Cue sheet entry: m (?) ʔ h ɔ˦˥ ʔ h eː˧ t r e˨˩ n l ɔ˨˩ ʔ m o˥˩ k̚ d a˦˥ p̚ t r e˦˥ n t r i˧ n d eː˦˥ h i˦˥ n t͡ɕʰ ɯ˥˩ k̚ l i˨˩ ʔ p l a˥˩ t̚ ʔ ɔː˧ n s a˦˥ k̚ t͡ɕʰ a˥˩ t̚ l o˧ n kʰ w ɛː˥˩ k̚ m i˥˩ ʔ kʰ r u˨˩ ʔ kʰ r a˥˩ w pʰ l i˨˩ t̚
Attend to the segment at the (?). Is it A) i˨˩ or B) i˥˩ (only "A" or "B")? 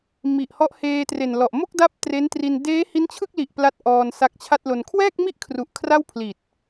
A